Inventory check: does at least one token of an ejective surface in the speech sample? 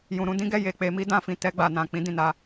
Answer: no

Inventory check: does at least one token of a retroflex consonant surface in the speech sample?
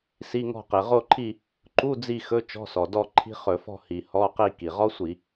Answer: no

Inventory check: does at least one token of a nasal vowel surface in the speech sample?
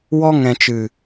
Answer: yes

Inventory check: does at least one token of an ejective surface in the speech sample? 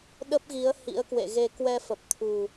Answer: no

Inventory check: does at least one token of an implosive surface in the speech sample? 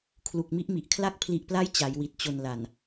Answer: no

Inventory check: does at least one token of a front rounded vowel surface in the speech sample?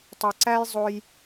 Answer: yes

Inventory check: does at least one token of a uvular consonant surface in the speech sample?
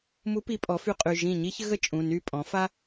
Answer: yes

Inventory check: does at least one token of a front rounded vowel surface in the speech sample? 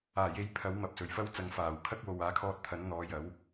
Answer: no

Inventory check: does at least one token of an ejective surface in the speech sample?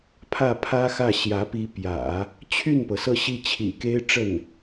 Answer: no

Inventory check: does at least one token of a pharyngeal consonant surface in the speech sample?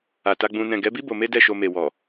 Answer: no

